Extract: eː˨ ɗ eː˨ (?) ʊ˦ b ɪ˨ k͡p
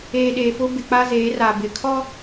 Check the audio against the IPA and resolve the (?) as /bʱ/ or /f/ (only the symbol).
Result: f